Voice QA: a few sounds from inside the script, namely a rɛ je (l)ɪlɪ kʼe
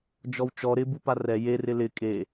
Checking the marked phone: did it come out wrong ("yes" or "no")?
yes